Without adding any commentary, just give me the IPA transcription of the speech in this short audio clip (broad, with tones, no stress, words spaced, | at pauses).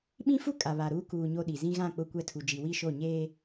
ɓĩ˦fu˦ kʼa˨βa˨ ɾuː˦ kuː˨ ɲo˦ɗi˨ zĩ˦ɣã˦˨ k͡pʊ˦˨kʷɛ˦tʰu˨ d͡ʒi˨wi˦˨ʃo˦˨ɲeː˦